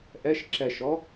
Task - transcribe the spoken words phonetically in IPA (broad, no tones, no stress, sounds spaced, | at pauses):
ʔ ɛ ʃ ǁ ɛ ʃ ɔ